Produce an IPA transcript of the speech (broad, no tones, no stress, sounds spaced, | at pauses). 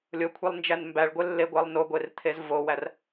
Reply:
lʲ o kʷʰ i lˠ n d͡ʒ æ n m b æ ɭ ɡʷ e lː e ɡʷ æ lˠ n o ɡʷ e r t̪ʰ e z v o w æ r